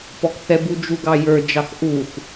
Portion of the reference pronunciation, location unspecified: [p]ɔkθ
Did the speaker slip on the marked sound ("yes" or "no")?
no